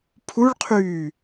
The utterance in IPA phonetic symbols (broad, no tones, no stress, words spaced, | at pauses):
pʰuɭqʰyː